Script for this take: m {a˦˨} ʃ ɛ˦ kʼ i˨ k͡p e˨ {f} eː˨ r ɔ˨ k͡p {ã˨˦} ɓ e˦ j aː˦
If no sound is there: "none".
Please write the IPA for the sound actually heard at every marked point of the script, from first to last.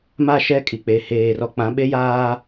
a˦˨, h, ã˨˦

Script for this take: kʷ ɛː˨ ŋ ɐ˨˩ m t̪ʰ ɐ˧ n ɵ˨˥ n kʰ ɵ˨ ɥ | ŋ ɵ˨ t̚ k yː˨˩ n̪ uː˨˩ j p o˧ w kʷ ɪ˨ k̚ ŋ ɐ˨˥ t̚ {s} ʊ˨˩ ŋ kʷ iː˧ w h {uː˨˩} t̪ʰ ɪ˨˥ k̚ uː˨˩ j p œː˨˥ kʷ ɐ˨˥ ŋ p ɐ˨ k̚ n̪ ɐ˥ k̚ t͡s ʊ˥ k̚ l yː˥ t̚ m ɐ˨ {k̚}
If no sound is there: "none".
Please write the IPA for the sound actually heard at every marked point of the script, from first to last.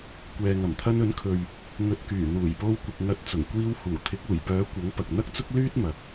t͡s, uː˨˩, k̚

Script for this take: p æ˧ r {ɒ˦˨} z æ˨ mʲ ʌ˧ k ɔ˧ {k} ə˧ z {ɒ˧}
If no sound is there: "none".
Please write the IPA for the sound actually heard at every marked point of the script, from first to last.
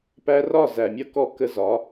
ɒ˦˨, k, ɒ˨˦

